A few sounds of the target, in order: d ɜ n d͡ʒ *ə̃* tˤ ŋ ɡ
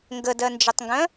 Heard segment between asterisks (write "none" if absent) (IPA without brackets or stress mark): ə